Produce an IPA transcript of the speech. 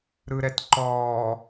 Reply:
ɾɯɾɛtǃɔː

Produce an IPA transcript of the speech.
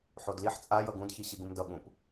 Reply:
ħodliħ t͡sʼa jʌɡũdçi ɕiɡũmdʌ ɠũp

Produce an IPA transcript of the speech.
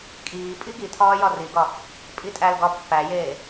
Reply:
kʼiː pʼiɡitʰɒː jɒriɡɒ | pʼitʼælɡɒ pːæjeː

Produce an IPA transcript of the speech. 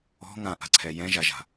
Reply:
ɔ̤ ŋãʔa̤ǀʰɛ jɛ̃ʒaʒa̤

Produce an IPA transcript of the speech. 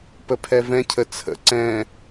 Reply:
pəpʰɛvɛ̃ cʰət͡sʰə̰ ǀɛ̃

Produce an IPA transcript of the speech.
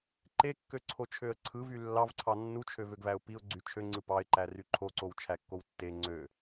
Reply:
ǃekːøǀʰo t͡ʃʰøə̯ǀʰɯvy lːɑvǀʰɑ nːut͡ʃʰøvøɡvæʊ̯ piʊ̯ɡ͡ǀy t͡ʃʰøŋ͡ǀɯ pɑɪ̯ǃæ ryǃʰoǀow t͡ʃʰækːowtːe ŋ͡ǀø

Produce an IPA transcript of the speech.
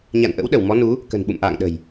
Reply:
ɲa̰˧˨nʔə̰˧˥w ɗə˧˩wmɔ˨˦nu˨˦ | kə̤˨˩nɓṵ˧˨mʔa̰ː˧˨ŋɗə̤˨˩j

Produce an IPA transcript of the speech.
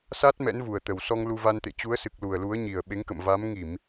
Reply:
sa˦˥t̚ mɛ̰˧˥nvu˨˩ə̯t̪ə˨˩wsɔ˧ŋ lu˧va˧nt̪ḛ˧˨ t͡ɕu˨˦ə̯sɨ˨˩k̚ lu˨˩ə̯lu˨˦ə̯ɲi˨˩ə̯ ɓe˨˦ŋkə̰˧˨m va˨˦m ŋi˧˩˨m

